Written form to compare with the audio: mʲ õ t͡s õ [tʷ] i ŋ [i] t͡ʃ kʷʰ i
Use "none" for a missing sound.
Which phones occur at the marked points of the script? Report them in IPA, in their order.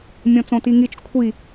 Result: t, i

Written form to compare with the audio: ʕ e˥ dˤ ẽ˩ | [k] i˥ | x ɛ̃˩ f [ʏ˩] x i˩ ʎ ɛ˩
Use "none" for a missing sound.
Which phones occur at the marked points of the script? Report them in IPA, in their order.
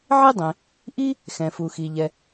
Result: ʔ, u˩

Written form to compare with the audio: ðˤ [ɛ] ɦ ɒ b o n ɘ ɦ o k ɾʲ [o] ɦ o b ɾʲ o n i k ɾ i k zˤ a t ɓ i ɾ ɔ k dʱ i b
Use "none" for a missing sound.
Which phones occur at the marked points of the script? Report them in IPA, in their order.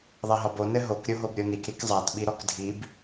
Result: ɛ, o

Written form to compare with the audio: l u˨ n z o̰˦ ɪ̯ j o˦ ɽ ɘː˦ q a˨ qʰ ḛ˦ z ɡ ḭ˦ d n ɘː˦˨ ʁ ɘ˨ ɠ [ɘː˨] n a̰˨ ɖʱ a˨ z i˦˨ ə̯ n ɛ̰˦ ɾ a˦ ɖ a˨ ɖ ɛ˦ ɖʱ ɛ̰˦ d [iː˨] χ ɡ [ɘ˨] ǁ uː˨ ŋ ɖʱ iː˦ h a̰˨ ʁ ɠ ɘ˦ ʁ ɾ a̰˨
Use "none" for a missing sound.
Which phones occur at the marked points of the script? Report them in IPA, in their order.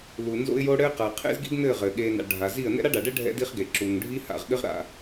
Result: eː˨, iː˦, e˨

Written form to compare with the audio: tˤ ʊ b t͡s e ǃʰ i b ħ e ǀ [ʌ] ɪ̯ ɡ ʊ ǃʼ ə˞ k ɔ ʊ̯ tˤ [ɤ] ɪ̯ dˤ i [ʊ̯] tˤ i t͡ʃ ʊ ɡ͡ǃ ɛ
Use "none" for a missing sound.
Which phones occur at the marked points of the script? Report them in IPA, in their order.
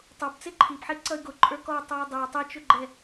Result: ʌ, ə˞, ʊ̯

